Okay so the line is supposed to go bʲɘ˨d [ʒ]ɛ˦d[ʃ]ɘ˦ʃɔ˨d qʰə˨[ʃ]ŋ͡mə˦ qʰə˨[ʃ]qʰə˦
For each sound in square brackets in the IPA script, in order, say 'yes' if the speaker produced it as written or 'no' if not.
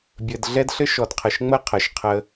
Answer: no, no, yes, yes

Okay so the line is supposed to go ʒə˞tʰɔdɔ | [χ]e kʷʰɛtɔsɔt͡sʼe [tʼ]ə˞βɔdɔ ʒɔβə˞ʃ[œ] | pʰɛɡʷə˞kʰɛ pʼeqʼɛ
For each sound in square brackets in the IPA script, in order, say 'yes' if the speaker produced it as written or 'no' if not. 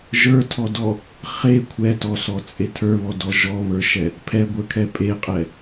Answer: yes, no, no

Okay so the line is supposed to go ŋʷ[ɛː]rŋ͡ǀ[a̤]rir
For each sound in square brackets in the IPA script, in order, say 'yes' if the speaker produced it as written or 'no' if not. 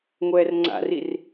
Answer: yes, no

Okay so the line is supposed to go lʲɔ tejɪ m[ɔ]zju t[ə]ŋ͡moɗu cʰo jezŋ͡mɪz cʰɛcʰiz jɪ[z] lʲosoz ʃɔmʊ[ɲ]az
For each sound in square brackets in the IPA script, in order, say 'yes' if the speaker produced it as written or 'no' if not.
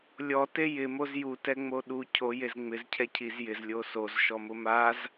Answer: no, no, yes, no

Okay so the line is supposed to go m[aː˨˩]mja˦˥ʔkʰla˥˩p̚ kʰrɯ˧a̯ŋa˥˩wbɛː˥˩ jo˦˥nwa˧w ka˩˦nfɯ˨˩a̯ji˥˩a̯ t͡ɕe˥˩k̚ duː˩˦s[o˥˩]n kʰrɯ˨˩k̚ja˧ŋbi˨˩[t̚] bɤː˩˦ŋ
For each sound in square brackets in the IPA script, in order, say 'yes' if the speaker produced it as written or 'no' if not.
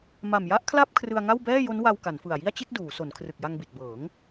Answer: no, no, yes

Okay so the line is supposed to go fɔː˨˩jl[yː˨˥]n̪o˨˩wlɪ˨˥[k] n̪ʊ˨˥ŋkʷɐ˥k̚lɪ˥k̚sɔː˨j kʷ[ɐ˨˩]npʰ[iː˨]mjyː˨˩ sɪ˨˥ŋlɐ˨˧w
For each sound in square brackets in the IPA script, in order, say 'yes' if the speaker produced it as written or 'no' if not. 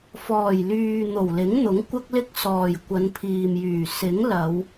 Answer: no, no, no, yes

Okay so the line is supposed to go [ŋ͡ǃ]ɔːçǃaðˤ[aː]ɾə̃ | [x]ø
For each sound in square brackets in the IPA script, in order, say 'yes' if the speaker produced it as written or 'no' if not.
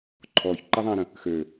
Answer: no, no, yes

